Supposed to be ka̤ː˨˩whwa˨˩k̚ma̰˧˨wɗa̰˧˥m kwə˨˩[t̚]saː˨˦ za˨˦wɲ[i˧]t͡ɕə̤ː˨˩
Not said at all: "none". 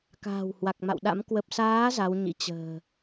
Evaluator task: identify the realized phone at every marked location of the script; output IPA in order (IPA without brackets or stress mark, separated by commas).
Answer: p̚, ḭ˧˥